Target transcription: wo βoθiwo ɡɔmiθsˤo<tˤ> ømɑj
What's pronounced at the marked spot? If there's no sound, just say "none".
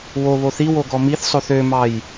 θ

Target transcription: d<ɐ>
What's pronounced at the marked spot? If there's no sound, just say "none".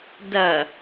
ɐ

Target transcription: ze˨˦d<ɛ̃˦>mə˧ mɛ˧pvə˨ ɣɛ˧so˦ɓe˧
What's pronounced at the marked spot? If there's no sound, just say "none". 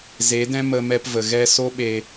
ɛ̃˦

